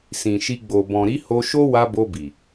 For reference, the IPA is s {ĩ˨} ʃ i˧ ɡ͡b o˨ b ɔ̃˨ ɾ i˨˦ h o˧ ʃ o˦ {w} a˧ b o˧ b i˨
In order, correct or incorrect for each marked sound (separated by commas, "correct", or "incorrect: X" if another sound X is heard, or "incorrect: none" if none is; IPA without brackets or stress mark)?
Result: correct, correct